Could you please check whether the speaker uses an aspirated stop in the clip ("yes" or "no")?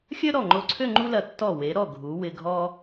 yes